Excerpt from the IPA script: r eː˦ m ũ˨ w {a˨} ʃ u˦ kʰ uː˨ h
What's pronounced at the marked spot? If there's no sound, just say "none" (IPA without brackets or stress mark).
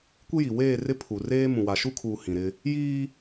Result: a˨